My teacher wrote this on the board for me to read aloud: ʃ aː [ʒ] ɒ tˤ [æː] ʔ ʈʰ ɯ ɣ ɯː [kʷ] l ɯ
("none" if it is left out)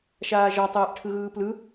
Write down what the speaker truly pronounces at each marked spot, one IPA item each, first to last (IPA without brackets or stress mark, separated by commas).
ʒ, ɛː, p